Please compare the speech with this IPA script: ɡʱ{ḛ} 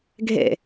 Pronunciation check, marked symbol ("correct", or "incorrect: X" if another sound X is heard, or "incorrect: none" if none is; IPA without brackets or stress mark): correct